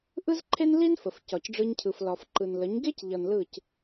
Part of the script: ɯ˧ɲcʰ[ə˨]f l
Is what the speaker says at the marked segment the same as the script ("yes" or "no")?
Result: no